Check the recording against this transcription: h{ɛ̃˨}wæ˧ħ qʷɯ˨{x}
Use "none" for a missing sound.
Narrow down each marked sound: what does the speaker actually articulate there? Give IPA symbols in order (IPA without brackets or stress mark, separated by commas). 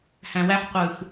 æ̃˨, x